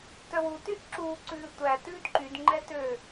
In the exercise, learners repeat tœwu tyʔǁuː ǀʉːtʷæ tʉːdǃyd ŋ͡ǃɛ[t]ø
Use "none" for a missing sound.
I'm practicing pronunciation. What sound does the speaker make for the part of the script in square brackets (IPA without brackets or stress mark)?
t